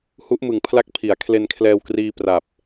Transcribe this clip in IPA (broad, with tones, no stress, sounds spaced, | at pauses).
h u˦˥ ʔ m ɯ˨˩ ŋ pʰ l a˦˥ k̚ pʰ i˩˦ a̯ kʰ l e˧ n kʰ l ɛː˧ w k r iː˧ p r a˨˩ p̚